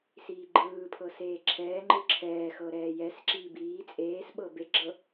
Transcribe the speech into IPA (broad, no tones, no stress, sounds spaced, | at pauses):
s iː ɡ͡ǃ ɯː pʰ ɤ s eː ǁʰ ɛː ŋ͡ǃ ɯ ǁʰ ɛː x ɤ ɾ ɛː j ɛ s ǁ iː b iː t͡sʼ eː s ɓ ɤ b e ɡ͡ǁ ɤ